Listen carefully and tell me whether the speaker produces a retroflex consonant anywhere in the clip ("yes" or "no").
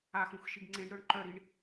yes